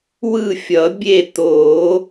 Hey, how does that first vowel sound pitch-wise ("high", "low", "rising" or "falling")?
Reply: falling